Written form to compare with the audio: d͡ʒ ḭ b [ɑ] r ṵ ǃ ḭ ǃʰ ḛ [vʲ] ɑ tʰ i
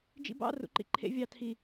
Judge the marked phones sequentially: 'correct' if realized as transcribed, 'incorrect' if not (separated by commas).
incorrect, correct